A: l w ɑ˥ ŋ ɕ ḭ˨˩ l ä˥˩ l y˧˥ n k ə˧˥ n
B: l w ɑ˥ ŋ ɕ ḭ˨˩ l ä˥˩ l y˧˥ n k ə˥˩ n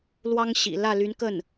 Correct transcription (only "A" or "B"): B